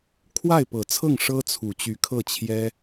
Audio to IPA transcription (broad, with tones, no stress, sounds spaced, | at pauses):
kʰ w a˥˩ ɪ̯ p ɤ˨˩ t͡sʰ ɤ˥˩ ŋ ʂ ɤ˥ t͡sʰ u˨˩ t͡ɕ y˧˥ kʰ ɤ˥˩ t͡ɕʰ j ɛ˥